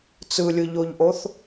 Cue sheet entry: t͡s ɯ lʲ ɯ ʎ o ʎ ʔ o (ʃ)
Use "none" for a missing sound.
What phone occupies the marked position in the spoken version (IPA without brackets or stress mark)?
θ